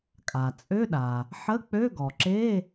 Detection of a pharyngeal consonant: present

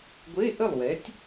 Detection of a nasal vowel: absent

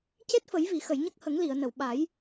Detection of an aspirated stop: absent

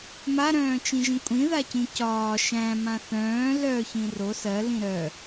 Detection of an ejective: present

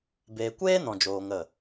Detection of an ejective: absent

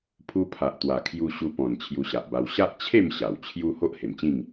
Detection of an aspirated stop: present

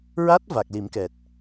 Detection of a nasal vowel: absent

